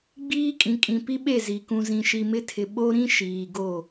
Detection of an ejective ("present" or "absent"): present